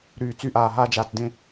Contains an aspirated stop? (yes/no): no